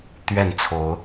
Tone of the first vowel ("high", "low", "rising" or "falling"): falling